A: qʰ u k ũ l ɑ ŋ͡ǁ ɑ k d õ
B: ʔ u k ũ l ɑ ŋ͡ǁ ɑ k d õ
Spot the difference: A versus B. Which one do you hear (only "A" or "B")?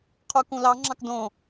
A